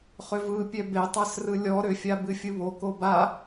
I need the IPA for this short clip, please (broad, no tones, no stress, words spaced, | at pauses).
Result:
χʏvɯpʲɛ betˤasrɯ lʲɔ ɾʏfʲa bɨfʲɯβo koba